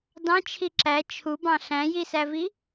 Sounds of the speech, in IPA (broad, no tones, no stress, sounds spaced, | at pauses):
d ɑ̃ t͡ʃʰ i ǁ æ t͡ʃʰ u b ɑ̃ ɬ æ̃ j i s æ v i